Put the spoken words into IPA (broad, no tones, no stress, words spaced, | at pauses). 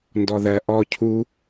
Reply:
ndɔðɜ ʔɔ cʰu